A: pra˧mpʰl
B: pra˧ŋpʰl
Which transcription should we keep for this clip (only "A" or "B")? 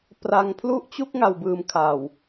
B